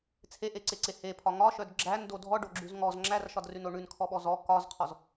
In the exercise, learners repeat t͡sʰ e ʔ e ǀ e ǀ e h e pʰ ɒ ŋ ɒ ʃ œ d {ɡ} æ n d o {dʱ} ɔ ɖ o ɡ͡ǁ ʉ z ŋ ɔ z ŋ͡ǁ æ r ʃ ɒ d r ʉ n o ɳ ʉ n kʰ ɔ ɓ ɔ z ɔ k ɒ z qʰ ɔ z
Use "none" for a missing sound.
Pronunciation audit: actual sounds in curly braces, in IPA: ɡ͡ǁ, dʱ

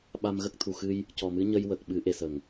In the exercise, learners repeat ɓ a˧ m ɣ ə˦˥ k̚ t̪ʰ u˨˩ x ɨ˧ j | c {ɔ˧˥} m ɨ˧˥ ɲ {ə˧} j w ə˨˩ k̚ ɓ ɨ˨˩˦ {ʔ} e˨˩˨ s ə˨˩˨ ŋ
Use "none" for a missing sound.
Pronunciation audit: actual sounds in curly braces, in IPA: ɔ˨˩, ə˧, ʔ

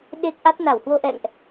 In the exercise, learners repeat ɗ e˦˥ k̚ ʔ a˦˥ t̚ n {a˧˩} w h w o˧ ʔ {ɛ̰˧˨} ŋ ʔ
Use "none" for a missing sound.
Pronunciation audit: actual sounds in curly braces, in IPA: a˧˩, ɛ̰˧˨

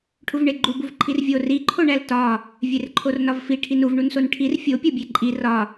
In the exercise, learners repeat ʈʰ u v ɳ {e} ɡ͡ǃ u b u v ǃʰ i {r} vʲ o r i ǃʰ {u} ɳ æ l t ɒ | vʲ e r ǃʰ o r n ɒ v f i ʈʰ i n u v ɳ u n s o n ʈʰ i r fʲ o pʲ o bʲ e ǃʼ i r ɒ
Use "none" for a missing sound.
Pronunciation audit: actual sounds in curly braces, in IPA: e, r, o

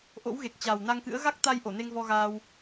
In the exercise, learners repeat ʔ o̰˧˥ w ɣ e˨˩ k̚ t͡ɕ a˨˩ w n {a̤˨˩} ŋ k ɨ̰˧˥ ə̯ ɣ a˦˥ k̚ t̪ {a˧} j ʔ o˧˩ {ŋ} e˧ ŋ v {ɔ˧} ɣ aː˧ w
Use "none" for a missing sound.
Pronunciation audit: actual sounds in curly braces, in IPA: a˧, a˧, n, ɔ˧

